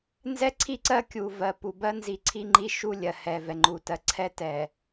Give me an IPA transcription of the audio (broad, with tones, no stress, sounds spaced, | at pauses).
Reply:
n z ɛ˦ ǀʰ i˦ ǀ ɜ˦ kʲ u˨ v ɜ˨ p u˨ b ɜ˦ n z i˨ ǀʰ i˦ ŋ͡ǃ i˦ ʃ u˦ lʲ ɜ˨ h ɛ˨ v ɛ˨ ŋ͡ǃ u˨ t ɜ˨ ǀʰ ɛ˦ t ɛ˨